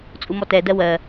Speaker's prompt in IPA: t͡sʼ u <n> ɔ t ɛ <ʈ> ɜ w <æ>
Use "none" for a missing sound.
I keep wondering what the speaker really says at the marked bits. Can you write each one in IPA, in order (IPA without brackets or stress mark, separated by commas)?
m, d, ɜ